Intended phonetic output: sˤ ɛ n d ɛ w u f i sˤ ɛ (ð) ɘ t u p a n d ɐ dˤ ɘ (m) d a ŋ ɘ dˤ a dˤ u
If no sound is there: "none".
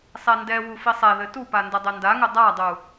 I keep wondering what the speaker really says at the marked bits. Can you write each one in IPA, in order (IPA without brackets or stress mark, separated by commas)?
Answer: ð, n